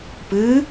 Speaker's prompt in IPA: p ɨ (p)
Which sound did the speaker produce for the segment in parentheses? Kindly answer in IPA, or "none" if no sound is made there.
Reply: none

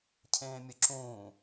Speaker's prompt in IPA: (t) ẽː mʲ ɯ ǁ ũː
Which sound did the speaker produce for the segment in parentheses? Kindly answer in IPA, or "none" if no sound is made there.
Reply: cʰ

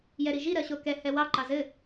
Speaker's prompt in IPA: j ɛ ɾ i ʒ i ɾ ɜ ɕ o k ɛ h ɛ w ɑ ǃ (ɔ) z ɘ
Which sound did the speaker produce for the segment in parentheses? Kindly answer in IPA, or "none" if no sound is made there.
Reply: ɑ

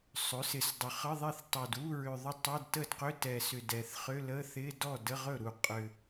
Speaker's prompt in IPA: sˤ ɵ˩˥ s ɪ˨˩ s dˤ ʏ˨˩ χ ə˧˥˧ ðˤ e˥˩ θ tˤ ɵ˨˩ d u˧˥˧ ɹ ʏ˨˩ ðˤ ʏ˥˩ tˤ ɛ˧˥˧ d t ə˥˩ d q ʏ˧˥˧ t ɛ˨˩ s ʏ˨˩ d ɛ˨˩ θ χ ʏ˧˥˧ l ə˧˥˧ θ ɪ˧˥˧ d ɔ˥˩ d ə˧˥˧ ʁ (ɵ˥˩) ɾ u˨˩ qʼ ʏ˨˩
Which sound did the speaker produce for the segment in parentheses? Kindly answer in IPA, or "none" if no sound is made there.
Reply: ɵ˥˩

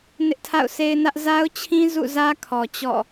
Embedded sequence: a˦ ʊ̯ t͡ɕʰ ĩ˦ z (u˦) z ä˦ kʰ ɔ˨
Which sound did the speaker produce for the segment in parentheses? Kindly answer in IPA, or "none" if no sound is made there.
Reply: ṵ˦˨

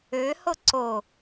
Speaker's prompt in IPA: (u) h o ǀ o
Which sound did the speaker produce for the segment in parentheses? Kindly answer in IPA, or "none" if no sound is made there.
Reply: ø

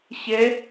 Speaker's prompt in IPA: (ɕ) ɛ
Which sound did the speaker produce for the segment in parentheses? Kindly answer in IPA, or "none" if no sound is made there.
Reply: ɕ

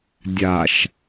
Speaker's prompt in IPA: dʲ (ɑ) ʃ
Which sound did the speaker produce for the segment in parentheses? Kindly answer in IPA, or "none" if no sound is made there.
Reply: a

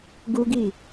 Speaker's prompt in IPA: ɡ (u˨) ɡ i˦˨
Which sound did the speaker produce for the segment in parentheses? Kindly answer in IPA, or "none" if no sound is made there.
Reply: u˦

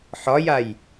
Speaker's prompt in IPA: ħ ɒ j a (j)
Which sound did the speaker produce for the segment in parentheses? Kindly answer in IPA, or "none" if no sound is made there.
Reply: j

